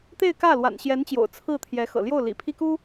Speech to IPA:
t̪ e˥˧ ɪ̯ k ä˥˩ l w a̰˨˩ n ɕ j ɛ˧˥ n t͡ɕ j o̰˨˩ ʊ̯ t͡sʰ ɹ̩˥˩ t̪ʰ j ɛ˧˥ x ɤ̰˨˩ l j o˥˩ ʊ̯ l ḭ˨˩ pʰ i˥ k u˥

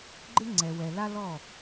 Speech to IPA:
ɡ͡ǃ ɪ˦ ŋ͡ǀ ɛ˨ w ɛ˨ l a˦ l ɔ˦˨

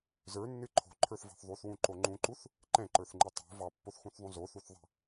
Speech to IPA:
z ə˞ nː ɨ ǃʰ o̤ ǃʰ ə˞ θ v ɑ̤ θ ðˤ u θ w ũ ǃ o ŋ͡ǃ ũ ǃ u θ | ǃ ɛ̃ ǃ ə˞ θ ŋ͡ǃ ɨ tˤ o̤ v ɑ pː o θ x ũ θ ðˤ ũ z o θ u θ ðˤ ɛ̤

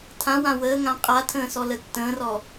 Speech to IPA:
tʰ ã w ã w əː ŋ ã qʼ a tʰ ə̃ː s ɔ l ə tː ə̃ː r ɔ

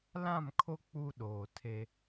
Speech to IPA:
l ã˦˨ m kʰ o˦ k͡p u˦ ɗ oː˨ tʰ e˦

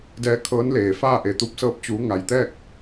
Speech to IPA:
d ɛː˧˥ kʰ ɤː˧˥ n l eː˩ f aː˥˨ ʔ e˩ t̪ u˧ p̚ s ɤː˧ p̚ t͡ɕ uː˩˧ ŋ a˩ j t̪ ɛː˥˨ k̚

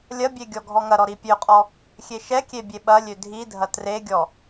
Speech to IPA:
lʲ ɐ bʲ e ɡʲ ɔ ɡʱ ɔ ŋ ɐ ɾ ɔ ɾ i pʲ ø qʼ ɔ | xʲ e ʃ ɛ kʲ e bʲ e ɓ ɐ lʲ ø dʱ i dʱ ɐ t r e ɡʲ ɔ

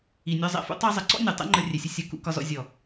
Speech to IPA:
i˨ nʲ ɒ˧ zˤ ɛ̰˨ f ṵ˦ tˤ æ˦ zˤ ə˧ ǀ ɔ̰˦ nʲ ɒ˨ tˤ ɛ̰˦ ŋ͡ǃ ə˧ rʲ ɛ˨ sʲ ʊ˧ sʲ ʌ˨˦ k ṵ˧ k ɒ˧ z ɔ̰˧ zʲ ɔ˨

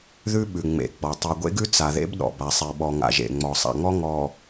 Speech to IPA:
ð ʉ˦ ɓ ʉ˨ ŋ͡m ḛ˨ ɡ͡b ɔ˨ tˤ ʉ˨ ɡʷ ḛ˦ ɡ ʉ˦ t͡s a˨ ð ḛ˦ b ɗ ɔ̰˨ b a˨ sˤ e˨ ɓ ɔ˨ ŋ a̰˨ ʒ ḛ˨ ŋ͡m ɔ˨ sˤ a̰˨ ŋ ɔ˦ ŋ ɔ˨

